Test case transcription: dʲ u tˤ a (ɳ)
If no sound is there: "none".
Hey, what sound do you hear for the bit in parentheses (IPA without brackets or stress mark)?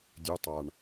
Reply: ɳ